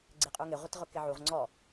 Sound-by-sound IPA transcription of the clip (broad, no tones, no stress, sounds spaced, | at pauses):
ɡ͡ǀ ɪ qʼ u ŋ ɪ ʁʷ ɪ t ʁ ʊ k ɪ ʕ u ʁ ŋ͡ǀ ɔ